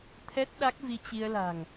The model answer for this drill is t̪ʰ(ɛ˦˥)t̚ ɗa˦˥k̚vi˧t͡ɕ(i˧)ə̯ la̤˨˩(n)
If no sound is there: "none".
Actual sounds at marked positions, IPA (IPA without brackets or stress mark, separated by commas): ɛ˦˥, i˧, ŋ